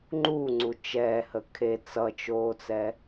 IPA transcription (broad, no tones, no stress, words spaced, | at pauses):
ŋ͡ǃuːŋ͡ǀu t͡ʃɛːhə kʰe t͡sʌt͡ʃoːt͡sɛ